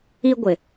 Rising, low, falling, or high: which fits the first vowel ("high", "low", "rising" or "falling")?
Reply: high